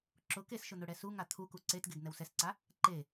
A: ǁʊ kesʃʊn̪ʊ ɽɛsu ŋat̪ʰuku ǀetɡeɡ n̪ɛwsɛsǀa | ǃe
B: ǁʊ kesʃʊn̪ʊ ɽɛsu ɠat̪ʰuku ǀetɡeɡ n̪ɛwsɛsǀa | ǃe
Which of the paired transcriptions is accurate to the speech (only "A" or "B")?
A